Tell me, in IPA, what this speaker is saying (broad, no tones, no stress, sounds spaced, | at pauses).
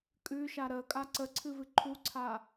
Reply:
kʼ ʉ ʃ a ɾ ə kʼ a ǀ ə ǀʰ ɨ v ɨ ǃʰ u ǀʰ a